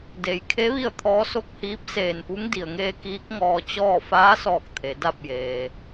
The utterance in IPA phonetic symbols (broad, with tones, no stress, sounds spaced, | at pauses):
d e˩˧ j kʰ e˧˥ ʋ i˥˨ ə̯ t̪ʰ ɔː˧˥ s o˥˨ k̚ h iː˧˥ p̚ s eː˧˩ n p u˧˥ ŋ d i˩ ə̯ ŋ eː˧ k iː˧˥ k̚ ŋ ɔː˧ t͡ɕ ɔː˥˨ f aː˧˥ s ɔː˧˩ k̚ t̪ʰ e˩˧ d a˥˨ p̚ j eː˩